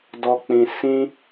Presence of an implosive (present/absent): absent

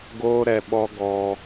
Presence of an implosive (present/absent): present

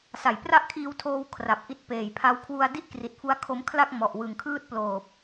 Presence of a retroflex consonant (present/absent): absent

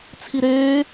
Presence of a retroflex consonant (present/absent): absent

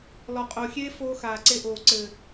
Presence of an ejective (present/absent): present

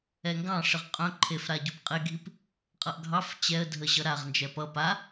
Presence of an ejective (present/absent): present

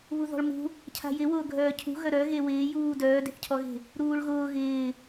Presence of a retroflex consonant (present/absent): present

